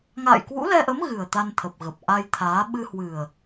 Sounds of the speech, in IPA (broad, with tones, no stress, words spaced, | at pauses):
ŋa̰ː˧˨jkwṵ˧˥lɛ˧ʔə˨˦m ɣɨ˨˩ə̯t̪a˧n t̪ʰə˨˩p̚ɣə˨˩p̚ ʔa˧jt̪ʰaː˨˦ ɓɨ˧hwɨ˨˩ə̯